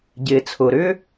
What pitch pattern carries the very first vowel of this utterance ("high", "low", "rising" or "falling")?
low